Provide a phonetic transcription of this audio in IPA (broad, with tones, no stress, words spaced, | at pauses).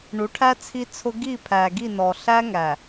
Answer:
ɳu˨˦ʈʰæ˦ t͡sʰi˦t͡sʰʊ˦ ɡi˦˨pʰæ˨ɡi˦˨nɔ˨ ɬæ˦ŋæ˨